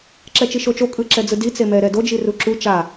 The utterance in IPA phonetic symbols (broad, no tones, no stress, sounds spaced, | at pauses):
ǁ ɛ t͡ʃ i ʃ o t͡ʃ o kʼ ɯ ǁ ɛ d͡z ɯ d i t͡s e m ɛ ɾ ɛ d o d͡ʒ i r u ǁ u t͡ʃ a